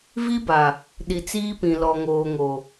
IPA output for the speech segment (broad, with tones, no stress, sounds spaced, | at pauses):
v i˦ b a˨ | ɗ i˨ t͡s iː˦ p ĩ˨ l ɔ˨ ŋ oː˨ ŋ o˨